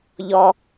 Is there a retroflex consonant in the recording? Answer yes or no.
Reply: no